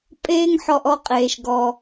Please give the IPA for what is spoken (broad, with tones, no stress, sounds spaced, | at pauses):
pʼ eː˦ ŋ ħ ɔ˧ ʔ ɔ˧ qʼ eː˨ ʃ ɡ ɔ˧